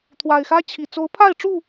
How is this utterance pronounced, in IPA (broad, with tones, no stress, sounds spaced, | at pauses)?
t̪ʰ w a˨˩ ɪ̯ x ä˦ t͡ɕʰ i˨˩ t͡s o˨˦ ʊ̯ pʰ a˥˨ ɪ̯ ʈ͡ʂ u˥˨